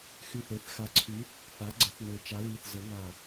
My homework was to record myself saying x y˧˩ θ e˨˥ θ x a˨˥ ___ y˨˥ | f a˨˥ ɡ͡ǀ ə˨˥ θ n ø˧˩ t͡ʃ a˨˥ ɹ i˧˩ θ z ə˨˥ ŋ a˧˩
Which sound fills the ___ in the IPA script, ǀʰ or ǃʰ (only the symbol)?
ǀʰ